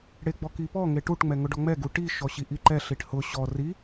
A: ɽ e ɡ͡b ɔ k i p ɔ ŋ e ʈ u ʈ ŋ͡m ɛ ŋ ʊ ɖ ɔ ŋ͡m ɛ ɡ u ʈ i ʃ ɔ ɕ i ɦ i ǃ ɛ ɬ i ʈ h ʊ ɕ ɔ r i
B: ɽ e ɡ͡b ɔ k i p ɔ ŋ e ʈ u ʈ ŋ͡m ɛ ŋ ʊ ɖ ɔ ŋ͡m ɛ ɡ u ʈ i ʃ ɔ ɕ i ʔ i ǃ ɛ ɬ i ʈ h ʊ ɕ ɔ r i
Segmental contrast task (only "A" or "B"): B